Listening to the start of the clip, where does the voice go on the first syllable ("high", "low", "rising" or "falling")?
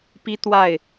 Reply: high